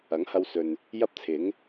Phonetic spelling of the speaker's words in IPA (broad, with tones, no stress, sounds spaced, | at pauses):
ɐ˨˥ ŋ h ɐ˧ w s ɵ˨ n | j ɐ˥ p̚ t͡sʰ ɪ˨˥ ŋ